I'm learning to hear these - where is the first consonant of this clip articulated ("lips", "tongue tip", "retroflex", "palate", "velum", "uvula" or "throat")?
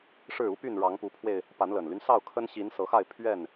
retroflex